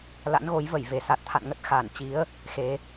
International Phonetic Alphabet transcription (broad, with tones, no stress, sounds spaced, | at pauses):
l a̰˧˥ n ɣ o˨˦ j v ə˧˩ j v e˨˩ s a˨˩ t̚ t̪ʰ a̰˧˨ n ŋ ə˦˥ t̚ x a˧˩ n t͡ɕ i˨˦ ə̯ | x e˨˦